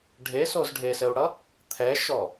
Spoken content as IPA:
ɖʱ e s o z ɖʱ e s ɘ u̯ ɽ ʌ | t̪ʰ ɛ ʃ ɔ

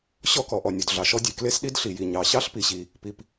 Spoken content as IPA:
ɕ ɔ˥ k ɔ˩ ʔ ɔ˩ nʲ o˩ d ɮ ɑ˩ ʃ ɔ˥ dʲ e˩ k l e˥ s ɗ i˥ d ɬ i˩ j i˩ ɲ ɑ˩ ɕ ɑ˥ ɬ p i˩ ɕ i˩ | p i˩ p

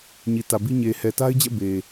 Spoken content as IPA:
ɲ i˨ t ä˨ b i˦ ɲ e˨ h ɛ˨ t a˦ ɪ̯ d͡ʑ ɛ̰˦˨ b e˨

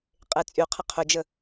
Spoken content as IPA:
qʼ e t͡sʼ y qʰ ə qʰ ʏ d͡ʒ ə

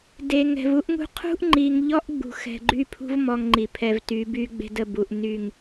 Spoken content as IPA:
d e˨ ŋ ɛ̤˨ v u˦ ʔ ŋ ṳ˦ qʰ ṳ˦ ʔ ŋ͡ǃ i˨ ŋ ʎ ɔ˦ ʔ ɡ͡b ṳ˨ x ɛ̤˨ ɡ͡ǃ y˦ pʰ ṳ˦ v m ɔ˦ ŋ ŋ͡ǃ i˨ pʰ ɛ˨ v t y˨˦ b y˦ ɡ͡b e̤˦ d ə˦˨ b u˨ ʔ n y˦˨ ŋ

